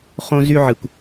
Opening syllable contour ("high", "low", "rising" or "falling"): high